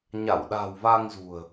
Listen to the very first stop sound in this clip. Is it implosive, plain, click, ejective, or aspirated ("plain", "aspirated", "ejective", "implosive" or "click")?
implosive